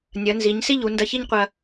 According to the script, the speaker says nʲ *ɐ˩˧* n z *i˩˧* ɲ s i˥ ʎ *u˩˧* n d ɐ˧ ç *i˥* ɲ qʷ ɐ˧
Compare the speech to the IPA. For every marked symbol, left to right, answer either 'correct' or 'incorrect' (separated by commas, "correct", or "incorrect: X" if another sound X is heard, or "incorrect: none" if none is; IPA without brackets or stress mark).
correct, correct, correct, correct